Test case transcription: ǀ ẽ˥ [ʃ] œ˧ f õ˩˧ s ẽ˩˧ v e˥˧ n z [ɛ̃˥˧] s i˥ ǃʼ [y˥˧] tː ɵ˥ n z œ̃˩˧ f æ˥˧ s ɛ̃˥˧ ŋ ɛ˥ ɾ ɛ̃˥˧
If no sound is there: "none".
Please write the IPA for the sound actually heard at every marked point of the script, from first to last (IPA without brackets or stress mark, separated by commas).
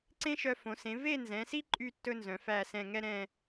ʃ, ɛ̃˩˧, y˥˧